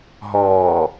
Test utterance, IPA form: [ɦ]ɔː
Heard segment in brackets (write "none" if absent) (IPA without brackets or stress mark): ɦ